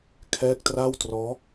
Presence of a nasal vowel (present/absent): absent